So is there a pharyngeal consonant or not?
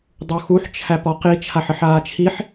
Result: yes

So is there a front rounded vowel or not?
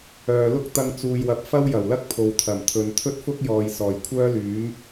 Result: yes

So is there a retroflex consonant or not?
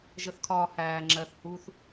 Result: no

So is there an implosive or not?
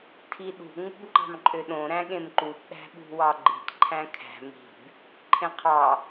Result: yes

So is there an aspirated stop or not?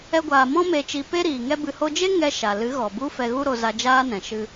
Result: no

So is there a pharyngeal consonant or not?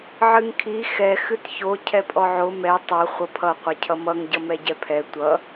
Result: yes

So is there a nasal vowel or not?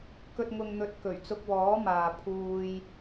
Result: no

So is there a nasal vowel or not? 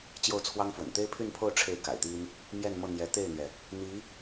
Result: no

